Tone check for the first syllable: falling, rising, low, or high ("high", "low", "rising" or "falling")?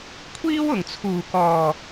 high